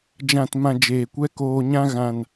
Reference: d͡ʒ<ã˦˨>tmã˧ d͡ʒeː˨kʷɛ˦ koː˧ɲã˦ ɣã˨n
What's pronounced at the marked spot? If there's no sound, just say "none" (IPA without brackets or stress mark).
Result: ã˦˨